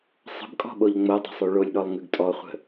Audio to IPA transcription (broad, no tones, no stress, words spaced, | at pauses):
sˤə̤bkʼɔ̤ɓoʎ ŋ͡modˤə̤sˤʉ ɭolʲɗɔlˠŋʉɡ tʼɔχʷə̤